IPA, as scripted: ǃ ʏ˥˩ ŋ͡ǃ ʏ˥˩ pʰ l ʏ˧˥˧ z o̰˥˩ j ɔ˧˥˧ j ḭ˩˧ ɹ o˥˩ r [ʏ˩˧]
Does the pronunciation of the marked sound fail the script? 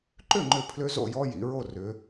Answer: no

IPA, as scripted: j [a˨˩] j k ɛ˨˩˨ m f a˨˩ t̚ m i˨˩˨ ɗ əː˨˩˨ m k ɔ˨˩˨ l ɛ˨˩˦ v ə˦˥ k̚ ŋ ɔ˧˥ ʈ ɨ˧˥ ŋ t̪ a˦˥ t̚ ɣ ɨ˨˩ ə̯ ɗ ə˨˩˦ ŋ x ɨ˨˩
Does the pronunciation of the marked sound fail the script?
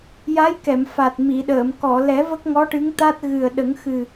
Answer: yes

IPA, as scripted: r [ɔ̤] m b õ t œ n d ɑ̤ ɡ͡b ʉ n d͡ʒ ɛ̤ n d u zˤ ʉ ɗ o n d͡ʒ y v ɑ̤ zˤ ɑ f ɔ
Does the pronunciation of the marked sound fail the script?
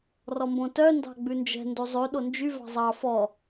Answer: yes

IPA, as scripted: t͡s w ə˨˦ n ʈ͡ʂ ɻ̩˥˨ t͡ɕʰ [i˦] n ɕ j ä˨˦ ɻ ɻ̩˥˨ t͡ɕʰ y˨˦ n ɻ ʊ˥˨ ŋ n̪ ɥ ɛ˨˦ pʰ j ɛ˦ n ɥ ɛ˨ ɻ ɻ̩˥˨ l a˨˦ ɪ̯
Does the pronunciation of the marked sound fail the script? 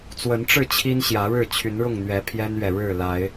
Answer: no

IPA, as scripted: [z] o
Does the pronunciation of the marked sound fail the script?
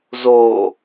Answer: no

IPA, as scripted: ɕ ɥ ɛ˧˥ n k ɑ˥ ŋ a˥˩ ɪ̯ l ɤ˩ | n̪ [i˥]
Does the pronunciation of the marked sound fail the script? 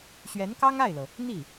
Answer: yes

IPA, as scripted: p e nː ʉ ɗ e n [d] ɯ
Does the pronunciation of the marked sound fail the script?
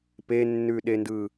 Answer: no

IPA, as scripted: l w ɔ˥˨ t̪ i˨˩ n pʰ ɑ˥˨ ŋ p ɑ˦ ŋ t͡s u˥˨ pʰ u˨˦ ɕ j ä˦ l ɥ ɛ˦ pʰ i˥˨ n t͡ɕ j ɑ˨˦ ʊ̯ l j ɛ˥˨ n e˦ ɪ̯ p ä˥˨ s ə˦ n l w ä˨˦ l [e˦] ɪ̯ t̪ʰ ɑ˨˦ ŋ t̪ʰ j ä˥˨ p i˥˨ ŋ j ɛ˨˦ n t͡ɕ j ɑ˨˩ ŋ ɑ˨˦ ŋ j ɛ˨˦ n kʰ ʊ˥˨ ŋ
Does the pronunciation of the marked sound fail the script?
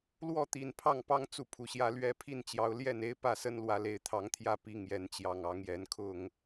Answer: yes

